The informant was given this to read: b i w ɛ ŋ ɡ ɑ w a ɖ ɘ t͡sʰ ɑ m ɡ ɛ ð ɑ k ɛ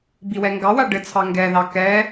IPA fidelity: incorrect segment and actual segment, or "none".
m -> ŋ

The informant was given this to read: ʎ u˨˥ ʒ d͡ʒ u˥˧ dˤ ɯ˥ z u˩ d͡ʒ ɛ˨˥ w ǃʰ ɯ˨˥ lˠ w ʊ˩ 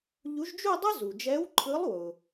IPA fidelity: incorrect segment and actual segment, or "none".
none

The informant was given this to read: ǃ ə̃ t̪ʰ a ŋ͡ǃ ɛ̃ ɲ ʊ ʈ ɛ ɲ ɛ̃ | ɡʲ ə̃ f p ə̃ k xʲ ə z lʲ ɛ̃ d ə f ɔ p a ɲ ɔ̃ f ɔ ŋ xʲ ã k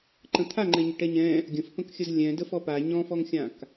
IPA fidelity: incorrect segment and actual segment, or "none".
none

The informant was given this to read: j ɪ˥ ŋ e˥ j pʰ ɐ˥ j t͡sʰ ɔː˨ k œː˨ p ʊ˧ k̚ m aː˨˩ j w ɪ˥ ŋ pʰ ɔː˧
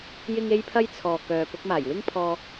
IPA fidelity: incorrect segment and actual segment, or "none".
none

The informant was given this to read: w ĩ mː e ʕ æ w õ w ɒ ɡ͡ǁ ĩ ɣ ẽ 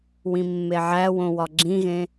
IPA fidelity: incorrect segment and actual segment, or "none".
none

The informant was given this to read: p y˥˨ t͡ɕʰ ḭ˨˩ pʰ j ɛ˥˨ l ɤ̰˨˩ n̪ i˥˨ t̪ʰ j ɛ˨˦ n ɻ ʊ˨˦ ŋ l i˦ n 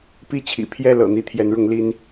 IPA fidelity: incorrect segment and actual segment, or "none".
y˥˨ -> i˥˨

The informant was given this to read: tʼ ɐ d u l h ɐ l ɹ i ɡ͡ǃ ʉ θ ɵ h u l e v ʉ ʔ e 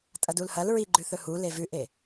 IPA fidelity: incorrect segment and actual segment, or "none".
none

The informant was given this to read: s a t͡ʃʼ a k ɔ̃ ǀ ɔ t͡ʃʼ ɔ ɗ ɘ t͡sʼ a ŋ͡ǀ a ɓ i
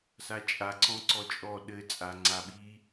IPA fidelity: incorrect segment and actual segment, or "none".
k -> ǀ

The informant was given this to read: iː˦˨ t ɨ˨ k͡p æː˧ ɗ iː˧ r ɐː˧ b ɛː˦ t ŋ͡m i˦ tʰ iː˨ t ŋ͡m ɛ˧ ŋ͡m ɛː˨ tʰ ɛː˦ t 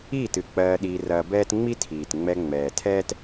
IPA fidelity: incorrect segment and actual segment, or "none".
æː˧ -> ɜː˧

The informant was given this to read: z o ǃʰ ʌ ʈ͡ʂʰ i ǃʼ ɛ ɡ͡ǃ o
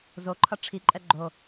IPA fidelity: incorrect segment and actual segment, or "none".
none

